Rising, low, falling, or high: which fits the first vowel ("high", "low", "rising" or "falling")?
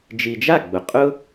low